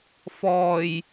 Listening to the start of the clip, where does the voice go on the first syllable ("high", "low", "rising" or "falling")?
low